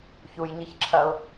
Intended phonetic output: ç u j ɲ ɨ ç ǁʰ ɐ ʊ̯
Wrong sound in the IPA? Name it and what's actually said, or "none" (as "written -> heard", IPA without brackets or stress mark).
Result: none